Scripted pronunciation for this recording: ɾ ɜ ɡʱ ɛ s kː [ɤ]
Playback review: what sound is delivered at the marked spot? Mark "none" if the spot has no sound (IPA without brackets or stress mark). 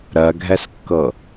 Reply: ɤ